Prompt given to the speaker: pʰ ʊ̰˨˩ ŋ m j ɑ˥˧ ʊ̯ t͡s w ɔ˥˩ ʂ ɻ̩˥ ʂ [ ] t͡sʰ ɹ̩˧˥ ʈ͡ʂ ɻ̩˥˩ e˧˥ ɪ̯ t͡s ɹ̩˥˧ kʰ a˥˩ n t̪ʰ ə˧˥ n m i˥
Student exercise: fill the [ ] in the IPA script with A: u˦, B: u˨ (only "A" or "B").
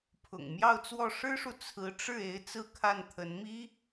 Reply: B